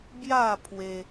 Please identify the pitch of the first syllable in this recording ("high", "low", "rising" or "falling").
falling